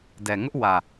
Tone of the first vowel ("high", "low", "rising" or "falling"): low